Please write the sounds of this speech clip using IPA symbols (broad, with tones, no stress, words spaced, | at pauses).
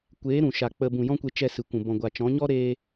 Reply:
kʷeː˨˦ ɾũ˨ʃa˨k͡pə˧ bũ˨ jɔ̃˦kʷe˧ t͡ʃɛ˧sɨ˨kʷũ˨ bɔ̃˨ɡʷa˨t͡ʃɔ̃˨˦ɲɔ˦ ɾe˧